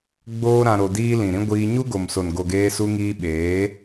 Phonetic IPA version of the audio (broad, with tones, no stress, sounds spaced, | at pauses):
ɡ͡b oː˦ ɾ ã˧ ɾ o˧ d iː˦ l ĩ˨ ɾ ĩ˦ ɡʷ iː˧ ɲ u˦ ɡ o˨ m s o˨ n ɡ o˨ ɡ eː˧ s u˧ ŋ iː˧ ɓ eː˨˦